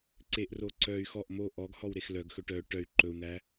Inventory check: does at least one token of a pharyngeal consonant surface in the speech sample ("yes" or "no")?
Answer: no